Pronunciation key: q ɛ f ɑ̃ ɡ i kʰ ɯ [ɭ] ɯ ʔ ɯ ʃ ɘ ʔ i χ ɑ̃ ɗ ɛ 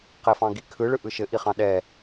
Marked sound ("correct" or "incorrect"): correct